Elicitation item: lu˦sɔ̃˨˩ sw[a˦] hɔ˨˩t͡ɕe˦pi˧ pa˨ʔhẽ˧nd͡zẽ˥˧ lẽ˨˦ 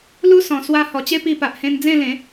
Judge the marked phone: incorrect: a˧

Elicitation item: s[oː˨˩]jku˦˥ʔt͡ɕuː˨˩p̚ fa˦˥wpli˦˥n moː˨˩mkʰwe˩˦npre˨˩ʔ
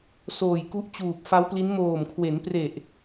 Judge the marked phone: correct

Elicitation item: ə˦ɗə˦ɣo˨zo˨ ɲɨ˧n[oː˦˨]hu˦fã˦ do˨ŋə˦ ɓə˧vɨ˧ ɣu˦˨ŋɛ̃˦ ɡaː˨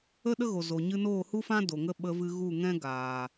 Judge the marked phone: correct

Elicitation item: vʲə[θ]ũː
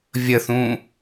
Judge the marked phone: correct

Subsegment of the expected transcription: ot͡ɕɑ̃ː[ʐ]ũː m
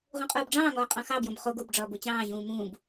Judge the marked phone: incorrect: ʑ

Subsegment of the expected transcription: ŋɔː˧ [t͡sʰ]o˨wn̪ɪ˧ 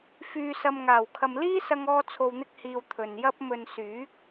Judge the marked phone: correct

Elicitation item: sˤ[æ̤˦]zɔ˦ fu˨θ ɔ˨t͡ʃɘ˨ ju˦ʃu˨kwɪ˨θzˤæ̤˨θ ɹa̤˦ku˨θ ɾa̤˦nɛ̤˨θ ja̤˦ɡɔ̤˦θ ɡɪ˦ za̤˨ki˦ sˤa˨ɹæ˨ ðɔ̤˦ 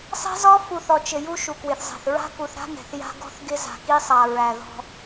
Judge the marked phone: incorrect: ɛ̤˦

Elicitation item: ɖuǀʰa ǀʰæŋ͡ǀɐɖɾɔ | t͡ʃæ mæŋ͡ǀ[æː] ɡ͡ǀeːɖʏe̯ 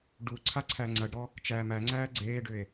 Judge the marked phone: correct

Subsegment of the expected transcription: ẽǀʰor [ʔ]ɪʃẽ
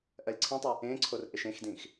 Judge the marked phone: correct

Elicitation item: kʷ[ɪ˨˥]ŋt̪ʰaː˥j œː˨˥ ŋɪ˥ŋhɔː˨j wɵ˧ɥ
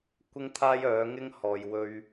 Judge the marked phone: incorrect: ɪ˥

